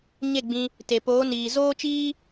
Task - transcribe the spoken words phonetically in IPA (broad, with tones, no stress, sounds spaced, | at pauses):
ɲ e˦˨ ɡ͡b ĩ˧ | t e˨ p oː˨˦ n iː˨ z oː˦ t͡ʃ iː˦